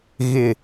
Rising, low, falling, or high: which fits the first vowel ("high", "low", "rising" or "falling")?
falling